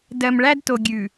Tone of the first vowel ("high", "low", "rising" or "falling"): low